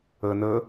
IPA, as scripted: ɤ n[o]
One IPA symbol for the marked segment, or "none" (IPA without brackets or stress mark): ɤ